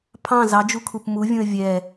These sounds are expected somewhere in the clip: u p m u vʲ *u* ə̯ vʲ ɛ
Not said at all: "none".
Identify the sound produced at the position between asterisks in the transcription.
ũ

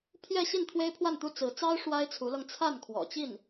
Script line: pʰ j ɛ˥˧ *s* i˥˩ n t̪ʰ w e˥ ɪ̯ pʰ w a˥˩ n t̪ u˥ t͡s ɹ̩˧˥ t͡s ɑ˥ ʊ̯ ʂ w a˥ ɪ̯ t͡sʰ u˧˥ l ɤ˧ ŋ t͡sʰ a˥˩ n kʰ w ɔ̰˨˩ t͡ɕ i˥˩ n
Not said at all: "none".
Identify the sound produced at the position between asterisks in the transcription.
ɕ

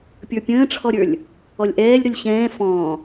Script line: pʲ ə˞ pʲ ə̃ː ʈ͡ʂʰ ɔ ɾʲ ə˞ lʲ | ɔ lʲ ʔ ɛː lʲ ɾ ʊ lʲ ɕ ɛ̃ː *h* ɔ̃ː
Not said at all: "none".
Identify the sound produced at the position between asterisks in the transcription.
f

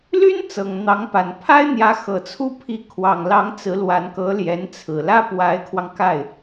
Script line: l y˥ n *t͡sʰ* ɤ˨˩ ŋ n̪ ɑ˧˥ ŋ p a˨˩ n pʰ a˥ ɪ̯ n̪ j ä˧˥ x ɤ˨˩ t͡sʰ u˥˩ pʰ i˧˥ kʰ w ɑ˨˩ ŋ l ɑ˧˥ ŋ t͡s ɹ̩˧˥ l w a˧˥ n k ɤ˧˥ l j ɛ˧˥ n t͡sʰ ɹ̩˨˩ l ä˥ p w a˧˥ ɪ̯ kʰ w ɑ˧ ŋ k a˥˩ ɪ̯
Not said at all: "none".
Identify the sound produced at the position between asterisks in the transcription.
t͡s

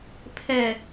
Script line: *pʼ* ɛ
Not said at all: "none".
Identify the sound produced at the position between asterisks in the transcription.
pʰ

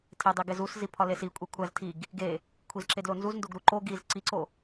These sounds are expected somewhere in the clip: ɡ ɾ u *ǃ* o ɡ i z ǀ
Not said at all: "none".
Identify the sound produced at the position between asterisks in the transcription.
ǃ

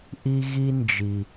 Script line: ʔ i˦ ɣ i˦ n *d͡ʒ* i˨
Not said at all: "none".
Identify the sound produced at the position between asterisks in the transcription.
d͡ʒ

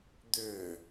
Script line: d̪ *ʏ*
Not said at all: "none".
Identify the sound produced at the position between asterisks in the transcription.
ʏ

